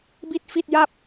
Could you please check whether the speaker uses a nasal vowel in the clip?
no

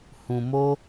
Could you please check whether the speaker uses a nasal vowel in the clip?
yes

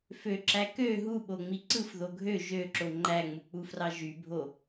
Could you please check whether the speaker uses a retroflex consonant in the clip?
no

